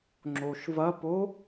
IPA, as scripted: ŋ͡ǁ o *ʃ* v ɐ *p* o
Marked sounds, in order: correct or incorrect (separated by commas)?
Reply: correct, correct